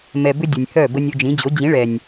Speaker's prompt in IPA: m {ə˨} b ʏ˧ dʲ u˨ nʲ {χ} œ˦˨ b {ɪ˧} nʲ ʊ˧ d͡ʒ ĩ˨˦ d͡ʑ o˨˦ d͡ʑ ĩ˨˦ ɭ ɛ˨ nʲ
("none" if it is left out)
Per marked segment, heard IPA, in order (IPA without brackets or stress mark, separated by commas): ɛ˨, h, ə˧